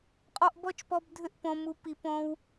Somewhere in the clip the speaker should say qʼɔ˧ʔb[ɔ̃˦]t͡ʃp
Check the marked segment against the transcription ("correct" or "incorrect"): incorrect